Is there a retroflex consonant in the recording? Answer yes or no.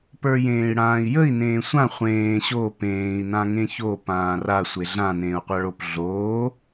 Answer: yes